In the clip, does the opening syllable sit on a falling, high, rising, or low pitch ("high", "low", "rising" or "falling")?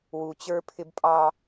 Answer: low